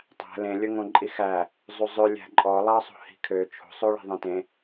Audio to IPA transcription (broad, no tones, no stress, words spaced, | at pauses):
tˤæ̤ lẽlʲɵŋõǃʼi xæ | zˤuzˤø lʲæ̤ǃʼɔ lˠɑsˤo̤ hi̤kʰø t͡ʃʰo̤sˤoɭi̤ðˤẽ tẽ